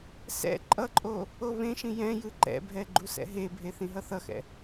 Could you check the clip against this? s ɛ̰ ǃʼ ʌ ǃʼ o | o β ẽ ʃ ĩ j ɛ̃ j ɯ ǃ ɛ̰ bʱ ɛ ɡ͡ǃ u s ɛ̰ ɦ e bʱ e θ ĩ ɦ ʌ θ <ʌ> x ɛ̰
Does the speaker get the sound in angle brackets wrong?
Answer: no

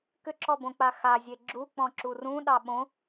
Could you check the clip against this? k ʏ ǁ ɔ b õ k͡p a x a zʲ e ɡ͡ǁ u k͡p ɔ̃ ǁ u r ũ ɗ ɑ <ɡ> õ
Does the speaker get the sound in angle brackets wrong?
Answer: yes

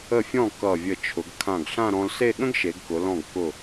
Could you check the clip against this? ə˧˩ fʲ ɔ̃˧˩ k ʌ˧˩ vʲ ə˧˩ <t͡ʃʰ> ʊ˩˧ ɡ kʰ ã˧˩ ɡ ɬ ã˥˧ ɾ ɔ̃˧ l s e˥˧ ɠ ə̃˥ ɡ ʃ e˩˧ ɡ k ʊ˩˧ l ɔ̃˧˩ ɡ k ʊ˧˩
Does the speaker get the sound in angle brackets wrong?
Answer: no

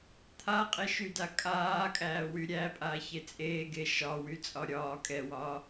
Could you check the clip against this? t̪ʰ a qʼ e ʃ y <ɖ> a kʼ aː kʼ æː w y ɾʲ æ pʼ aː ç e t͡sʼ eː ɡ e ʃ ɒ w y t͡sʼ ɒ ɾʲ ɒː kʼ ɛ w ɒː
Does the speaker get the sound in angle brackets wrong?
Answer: yes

